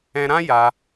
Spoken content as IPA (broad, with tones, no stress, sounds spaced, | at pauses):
ɛ̃˧ ɾ ã˦ j a˧